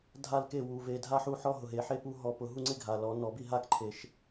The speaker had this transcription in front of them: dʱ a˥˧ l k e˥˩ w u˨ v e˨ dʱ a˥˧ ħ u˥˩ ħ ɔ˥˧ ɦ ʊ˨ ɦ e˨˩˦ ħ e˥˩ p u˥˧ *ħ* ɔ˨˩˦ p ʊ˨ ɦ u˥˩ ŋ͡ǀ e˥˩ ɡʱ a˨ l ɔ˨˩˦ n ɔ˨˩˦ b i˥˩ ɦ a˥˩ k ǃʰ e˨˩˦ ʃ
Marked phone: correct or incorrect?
incorrect